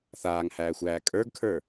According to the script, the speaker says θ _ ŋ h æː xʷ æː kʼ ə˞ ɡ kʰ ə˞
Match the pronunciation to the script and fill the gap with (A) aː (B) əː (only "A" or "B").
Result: A